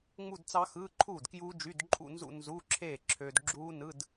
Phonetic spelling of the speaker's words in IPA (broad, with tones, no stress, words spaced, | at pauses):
ŋ͡mu˥˧dt͡sɑ˦˥xɯː˧˥˧ǃʰuː˥˩d kjuː˦˥d͡ʒy˧˥˧dǃʼṵ˥˧nzṵ˥˧ nzu˧˥˧ ǁʰeː˥˩ǁʰøː˧d ɡ͡ǁuː˦˥nɯ˧˥˧d